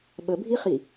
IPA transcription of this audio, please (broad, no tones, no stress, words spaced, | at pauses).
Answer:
ɓəbʱiχi